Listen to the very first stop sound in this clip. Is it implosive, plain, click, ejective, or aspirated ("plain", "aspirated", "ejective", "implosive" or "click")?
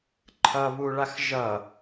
click